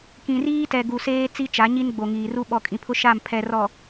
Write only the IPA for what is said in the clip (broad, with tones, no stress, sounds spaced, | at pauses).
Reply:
k ĩ˨ r iː˦ t ɛ˨ ɡ u˨ s eː˦ t͡s i˦ t͡ʃ a˨˦ ɲ i˦ n ɡ͡b o˨ ŋ iː˨ r u˦ ɓ ɔ˨ kʼ ĩ˨ pʰ ʊ˦ ʃ a˦˨ m pʰ ɛ˨ r ɔ˨